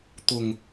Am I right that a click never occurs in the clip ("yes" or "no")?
yes